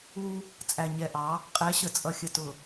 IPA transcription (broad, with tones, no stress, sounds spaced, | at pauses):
u˦ | t͡sʼ æ˨ ɲ ɛ˨ ʔ ɑ˨˦ | qʼ ɛ˨˦ ɕ ə˨ t͡sʼ ʌ˨ xʲ ə˨ t ʊ˨